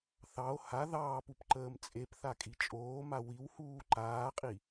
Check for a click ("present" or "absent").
present